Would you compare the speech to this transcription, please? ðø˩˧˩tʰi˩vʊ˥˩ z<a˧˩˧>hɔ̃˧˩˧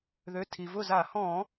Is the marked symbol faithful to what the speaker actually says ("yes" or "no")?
yes